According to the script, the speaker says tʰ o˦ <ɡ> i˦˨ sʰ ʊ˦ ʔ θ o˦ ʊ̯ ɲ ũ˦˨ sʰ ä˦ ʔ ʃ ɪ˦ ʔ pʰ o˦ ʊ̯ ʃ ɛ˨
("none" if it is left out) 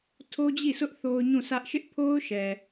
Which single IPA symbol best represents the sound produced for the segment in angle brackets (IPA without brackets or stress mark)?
d͡ʑ